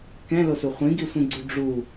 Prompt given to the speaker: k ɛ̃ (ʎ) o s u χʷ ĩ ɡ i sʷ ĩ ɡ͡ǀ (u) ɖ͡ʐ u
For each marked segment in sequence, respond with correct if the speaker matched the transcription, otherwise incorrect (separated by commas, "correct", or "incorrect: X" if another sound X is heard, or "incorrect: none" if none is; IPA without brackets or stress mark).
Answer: incorrect: l, correct